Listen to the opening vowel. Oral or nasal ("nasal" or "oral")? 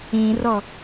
nasal